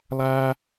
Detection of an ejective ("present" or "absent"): absent